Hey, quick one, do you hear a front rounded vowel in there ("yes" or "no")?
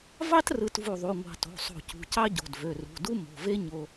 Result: yes